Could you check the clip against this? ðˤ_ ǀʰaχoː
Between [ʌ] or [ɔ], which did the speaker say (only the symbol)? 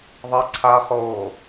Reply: ʌ